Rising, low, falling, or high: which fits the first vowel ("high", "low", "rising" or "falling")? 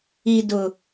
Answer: low